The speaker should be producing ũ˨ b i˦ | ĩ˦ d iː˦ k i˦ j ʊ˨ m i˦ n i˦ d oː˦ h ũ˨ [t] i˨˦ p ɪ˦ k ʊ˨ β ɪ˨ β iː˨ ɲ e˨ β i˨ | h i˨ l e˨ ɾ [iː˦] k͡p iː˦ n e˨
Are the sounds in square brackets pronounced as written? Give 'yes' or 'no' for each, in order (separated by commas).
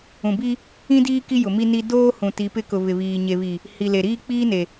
yes, yes